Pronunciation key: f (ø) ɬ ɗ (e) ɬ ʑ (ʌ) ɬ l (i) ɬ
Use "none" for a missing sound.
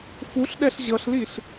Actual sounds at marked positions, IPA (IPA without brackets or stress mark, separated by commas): u, ɛ, ʌ, i